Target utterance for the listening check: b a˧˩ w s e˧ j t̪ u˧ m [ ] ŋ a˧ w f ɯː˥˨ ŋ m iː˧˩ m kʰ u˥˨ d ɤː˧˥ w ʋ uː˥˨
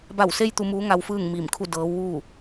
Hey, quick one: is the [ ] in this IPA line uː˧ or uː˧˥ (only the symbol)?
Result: uː˧˥